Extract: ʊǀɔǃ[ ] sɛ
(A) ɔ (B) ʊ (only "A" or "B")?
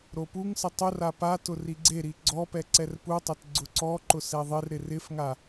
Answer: B